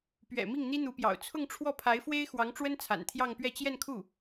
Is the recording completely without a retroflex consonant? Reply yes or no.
no